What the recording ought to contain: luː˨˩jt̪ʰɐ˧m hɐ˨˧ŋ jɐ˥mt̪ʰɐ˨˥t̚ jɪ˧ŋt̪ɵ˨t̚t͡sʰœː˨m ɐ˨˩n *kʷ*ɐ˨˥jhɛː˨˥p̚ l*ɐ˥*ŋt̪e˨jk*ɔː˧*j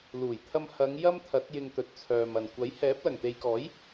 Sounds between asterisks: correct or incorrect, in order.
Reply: correct, incorrect, incorrect

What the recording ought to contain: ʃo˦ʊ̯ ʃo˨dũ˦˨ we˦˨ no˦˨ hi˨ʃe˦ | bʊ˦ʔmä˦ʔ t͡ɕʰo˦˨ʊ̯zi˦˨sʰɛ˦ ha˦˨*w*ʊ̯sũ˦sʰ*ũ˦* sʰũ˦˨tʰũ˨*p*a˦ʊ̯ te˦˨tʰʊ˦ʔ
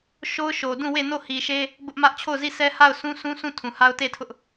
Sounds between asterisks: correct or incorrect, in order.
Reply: incorrect, correct, incorrect

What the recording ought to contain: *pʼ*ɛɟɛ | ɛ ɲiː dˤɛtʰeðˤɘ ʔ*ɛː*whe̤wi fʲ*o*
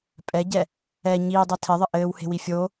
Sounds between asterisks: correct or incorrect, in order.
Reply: correct, incorrect, correct

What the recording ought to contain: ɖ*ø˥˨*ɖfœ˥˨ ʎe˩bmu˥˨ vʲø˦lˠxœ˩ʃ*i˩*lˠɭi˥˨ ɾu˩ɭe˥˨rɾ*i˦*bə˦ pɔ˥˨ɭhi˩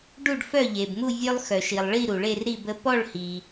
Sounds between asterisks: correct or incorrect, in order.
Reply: incorrect, correct, incorrect

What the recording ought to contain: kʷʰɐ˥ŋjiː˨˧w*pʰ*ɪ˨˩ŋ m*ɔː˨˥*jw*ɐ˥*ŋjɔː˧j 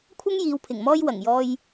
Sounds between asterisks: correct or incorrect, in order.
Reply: correct, incorrect, incorrect

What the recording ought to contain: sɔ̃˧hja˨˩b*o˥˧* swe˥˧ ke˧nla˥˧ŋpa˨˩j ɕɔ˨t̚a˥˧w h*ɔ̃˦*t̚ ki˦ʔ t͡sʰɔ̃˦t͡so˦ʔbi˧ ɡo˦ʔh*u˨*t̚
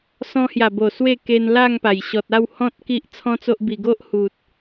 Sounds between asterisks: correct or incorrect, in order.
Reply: incorrect, correct, correct

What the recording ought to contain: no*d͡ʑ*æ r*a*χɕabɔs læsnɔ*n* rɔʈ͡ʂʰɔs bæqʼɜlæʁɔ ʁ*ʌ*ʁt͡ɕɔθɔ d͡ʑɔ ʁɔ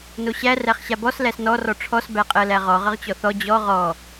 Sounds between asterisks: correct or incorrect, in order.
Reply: incorrect, incorrect, incorrect, correct

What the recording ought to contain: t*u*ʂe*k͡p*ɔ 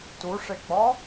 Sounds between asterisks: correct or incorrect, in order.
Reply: correct, correct

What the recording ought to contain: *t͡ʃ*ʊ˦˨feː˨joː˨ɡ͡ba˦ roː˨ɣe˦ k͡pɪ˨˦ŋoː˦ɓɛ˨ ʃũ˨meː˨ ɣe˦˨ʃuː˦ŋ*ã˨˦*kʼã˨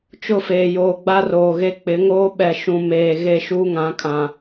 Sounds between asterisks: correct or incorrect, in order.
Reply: correct, correct

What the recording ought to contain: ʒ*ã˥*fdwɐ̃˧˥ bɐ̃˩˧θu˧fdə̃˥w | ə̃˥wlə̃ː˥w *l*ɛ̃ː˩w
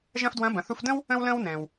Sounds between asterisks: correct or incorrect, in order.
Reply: incorrect, incorrect

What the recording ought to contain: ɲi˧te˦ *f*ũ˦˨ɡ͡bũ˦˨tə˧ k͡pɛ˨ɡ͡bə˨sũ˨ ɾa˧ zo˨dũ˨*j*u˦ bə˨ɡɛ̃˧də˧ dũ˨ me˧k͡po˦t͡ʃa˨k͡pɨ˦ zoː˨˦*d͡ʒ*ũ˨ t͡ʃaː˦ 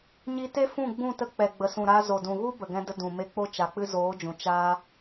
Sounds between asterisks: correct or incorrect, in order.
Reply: correct, incorrect, correct

